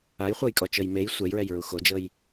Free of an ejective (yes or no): no